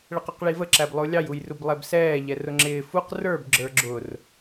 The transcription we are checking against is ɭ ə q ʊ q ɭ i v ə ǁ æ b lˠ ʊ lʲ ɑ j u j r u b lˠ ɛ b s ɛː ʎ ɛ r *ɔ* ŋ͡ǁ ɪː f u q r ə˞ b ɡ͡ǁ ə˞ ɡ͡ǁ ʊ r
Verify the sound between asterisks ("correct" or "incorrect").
incorrect